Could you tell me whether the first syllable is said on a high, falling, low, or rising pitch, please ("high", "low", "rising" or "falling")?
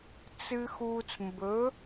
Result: low